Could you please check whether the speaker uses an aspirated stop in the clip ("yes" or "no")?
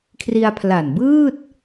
yes